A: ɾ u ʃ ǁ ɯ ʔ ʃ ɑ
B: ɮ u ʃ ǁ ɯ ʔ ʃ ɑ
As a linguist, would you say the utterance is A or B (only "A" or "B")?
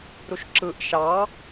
A